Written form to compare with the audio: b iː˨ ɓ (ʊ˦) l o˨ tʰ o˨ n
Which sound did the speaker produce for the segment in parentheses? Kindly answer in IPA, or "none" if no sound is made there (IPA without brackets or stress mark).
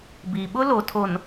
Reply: ʊ˦